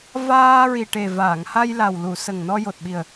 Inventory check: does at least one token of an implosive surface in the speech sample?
yes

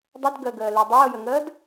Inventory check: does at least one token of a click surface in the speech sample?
no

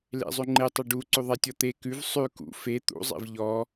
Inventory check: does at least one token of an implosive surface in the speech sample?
no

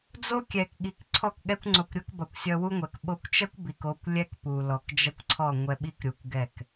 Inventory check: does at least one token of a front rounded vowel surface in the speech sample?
no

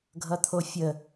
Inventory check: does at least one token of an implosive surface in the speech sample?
no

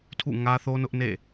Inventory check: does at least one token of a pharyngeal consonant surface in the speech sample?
no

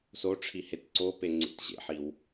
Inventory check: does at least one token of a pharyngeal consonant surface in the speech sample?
yes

